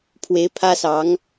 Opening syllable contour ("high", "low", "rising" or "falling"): rising